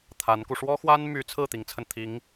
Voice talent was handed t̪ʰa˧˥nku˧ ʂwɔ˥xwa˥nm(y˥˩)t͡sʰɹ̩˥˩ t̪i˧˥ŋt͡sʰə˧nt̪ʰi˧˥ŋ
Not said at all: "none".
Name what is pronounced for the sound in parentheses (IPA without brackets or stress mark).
y˧˥